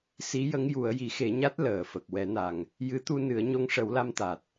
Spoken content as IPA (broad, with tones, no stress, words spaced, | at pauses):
si˧˥jə˧˥ŋ ju˨˩˦ə̯ji˨˩˦xe˨˩˦ɲa˦˥t̚ ləː˨˩fə˨˩k̚ wɛ˨˩˦na˨˩ŋ | jɨ˧˥t̪u˧ nɨ˨˩˦ə̯ɲo˧ŋʂə˨˩˦w la˧mt̪a˨˩t̚